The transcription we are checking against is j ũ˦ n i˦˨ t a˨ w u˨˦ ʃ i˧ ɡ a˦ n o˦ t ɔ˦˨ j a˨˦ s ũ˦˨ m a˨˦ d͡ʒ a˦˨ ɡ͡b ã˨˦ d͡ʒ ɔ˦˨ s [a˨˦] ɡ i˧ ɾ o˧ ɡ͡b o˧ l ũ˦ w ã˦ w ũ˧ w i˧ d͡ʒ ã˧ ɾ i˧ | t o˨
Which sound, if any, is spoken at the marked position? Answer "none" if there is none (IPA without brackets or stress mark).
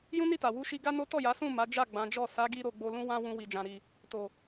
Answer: a˨˦